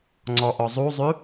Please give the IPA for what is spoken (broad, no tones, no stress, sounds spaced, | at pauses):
ŋ͡ǀ ɔ ʔ ɔ zˤ u zˤ y